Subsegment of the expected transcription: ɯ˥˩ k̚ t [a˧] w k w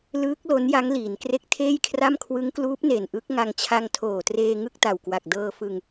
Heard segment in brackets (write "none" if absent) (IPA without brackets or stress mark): a˨˩